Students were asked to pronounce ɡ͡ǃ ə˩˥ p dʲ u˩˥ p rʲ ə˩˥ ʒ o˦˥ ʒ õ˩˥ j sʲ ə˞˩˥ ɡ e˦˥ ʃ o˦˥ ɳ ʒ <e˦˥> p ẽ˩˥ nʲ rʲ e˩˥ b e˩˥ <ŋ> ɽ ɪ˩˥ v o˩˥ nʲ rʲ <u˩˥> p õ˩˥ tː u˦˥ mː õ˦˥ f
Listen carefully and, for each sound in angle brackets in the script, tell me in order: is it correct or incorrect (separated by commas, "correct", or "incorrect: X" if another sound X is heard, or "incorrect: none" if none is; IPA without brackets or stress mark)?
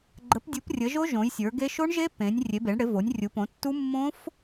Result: correct, incorrect: ɳ, correct